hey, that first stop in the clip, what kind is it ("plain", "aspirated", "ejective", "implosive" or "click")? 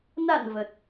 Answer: plain